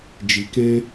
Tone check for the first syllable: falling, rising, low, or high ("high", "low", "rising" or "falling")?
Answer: low